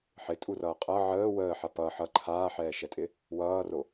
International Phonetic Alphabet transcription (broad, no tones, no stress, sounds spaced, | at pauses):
ħ ɪ tʼ u r ʌː qʼ ʌ ʕ əː w əː ħ a p ʌ ħ ʌ ǃʰ aː ħ ɛː ʃ ɛ tʼ ɪ | w ʌː r o